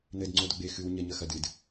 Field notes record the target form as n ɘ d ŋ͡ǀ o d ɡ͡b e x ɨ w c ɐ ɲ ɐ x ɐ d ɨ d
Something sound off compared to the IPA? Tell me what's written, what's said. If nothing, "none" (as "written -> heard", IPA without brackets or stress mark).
c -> ɲ